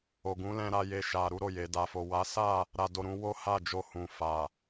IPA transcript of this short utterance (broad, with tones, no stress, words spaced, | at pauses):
o˨ɡũ˨˦lɛ̃˧ɾa˧ je˧ʃa˨ ɾu˨˦ɾo˦˨je˨ da˨fo˨ wa˨˦sa˦˨ | ɾa˨do˨ɾũ˧ wo˦ha˦˨ d͡ʒo˧hũ˨fa˨